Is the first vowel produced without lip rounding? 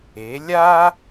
yes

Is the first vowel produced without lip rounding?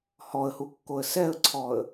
no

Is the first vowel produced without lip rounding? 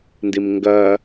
yes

